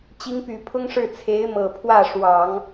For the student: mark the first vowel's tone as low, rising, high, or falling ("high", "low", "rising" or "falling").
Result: rising